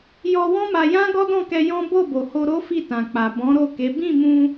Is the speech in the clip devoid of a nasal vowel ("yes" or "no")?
no